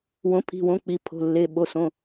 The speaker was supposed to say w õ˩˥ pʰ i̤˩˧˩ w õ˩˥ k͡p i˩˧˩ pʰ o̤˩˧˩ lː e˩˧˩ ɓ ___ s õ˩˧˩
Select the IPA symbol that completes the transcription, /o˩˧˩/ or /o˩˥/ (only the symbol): o˩˧˩